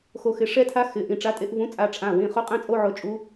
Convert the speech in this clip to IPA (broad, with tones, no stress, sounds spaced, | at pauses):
x o˧ x ɪ˧ ʂ ɛ˥ tʰ a˥ x ɪ˩˧˩ ʔ ĩ˩˧˩ ʈ͡ʂ a˧˥ tʼ e˧˥ ʔ v ũ˧˥ t͡sʼ a˧ ʈ͡ʂʰ ã˩˧˩ w ĩ˩˧˩ χ u˧˥ qʼ ɛ̃˥ t͡sʼ o˥ ʕ o˧ t͡ʃʼ u˧˥